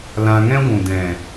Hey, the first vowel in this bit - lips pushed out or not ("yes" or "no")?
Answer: no